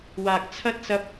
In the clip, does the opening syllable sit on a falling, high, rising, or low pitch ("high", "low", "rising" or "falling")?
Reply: low